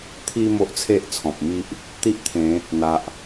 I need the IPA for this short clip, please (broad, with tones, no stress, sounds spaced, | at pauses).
t̪ʰ i˧ m o˦ ʔ t͡sʰ e˦ ʔ t͡sʰ ɔ̃˨ p̚ m i˦ ʔ | t̪ i˦ ʔ t̪ʰ ẽ˨˦ | n̪ a˨ ʔ